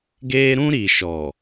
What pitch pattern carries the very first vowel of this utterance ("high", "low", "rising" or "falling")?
high